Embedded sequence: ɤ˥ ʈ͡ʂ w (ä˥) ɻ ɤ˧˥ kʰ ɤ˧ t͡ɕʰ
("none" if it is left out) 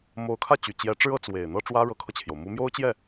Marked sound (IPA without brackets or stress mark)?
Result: ä˥